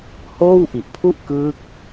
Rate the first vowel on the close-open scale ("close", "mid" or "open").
mid